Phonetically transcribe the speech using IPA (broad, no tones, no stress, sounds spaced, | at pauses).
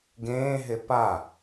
ɡ ẽː ɦ e p a